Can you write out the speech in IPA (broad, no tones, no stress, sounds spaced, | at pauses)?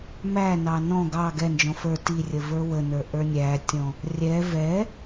m æ n ɑ n ɔ̃ ɡ ɑ ɡ ɛ n d͡ʒ ɔ̃ f ə˞ t i rʲ ə v ə˞ w ə n ə˞ ʔ ə˞ nʲ æ tʲ ɔ̃ | rʲ ɛ v ɛ